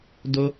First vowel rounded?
yes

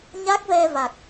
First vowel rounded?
no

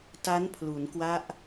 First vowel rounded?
no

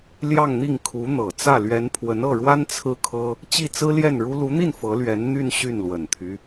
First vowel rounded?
no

